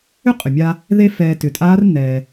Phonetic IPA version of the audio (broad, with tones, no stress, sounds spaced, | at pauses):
ʏ˥ qʼ ʏ˩ mʲ a˧ | ð e˥ f ɛː˧ t ʏ˩˧ tʼ aː˧˥ r nː ɛː˩